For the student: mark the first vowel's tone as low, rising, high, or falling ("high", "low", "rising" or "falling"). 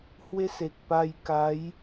high